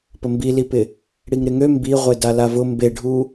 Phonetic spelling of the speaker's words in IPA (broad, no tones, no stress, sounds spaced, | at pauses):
p ə m b i l i p ɪ | ɽ i ŋ ɾ ɪ ŋ ø m b i ʁʷ e d a l a v ʊ m b e ɖʱ u